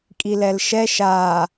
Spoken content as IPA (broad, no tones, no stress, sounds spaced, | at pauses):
kʼ i l ɛ l ʃ ɛ ʃ a